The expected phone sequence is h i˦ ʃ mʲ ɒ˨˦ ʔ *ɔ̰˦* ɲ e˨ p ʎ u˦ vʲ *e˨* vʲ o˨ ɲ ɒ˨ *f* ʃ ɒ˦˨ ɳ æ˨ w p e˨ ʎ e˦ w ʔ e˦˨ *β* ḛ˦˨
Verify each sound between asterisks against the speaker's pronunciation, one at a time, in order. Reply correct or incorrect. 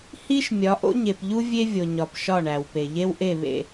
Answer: incorrect, incorrect, incorrect, correct

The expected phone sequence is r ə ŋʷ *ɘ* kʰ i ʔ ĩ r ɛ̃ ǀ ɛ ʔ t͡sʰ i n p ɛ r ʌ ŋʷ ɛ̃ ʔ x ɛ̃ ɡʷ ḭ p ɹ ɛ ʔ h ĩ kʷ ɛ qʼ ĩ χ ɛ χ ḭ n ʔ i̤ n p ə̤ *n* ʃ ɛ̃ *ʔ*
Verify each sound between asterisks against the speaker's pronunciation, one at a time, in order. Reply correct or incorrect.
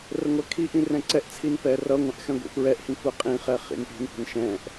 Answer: incorrect, correct, correct

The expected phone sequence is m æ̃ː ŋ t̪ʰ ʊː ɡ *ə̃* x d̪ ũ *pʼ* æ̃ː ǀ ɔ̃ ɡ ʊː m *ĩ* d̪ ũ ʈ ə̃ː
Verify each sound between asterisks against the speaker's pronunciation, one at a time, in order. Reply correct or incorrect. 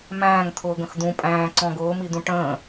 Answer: correct, correct, incorrect

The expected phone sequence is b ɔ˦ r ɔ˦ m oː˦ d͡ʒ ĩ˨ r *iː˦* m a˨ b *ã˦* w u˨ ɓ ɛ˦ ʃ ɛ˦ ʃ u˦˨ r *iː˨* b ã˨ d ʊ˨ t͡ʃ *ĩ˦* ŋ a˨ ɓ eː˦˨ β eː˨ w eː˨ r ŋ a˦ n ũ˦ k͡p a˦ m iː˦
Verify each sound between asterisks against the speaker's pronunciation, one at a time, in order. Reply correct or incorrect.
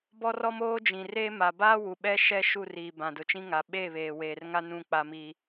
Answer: incorrect, incorrect, correct, correct

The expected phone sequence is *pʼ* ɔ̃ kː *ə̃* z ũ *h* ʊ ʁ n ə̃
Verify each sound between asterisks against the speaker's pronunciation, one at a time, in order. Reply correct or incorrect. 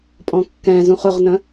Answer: correct, incorrect, incorrect

